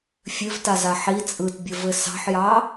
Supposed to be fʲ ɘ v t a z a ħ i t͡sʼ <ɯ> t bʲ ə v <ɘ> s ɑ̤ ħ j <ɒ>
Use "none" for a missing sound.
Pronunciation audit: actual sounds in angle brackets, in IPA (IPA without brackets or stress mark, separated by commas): ɯ, ɘ, ɑ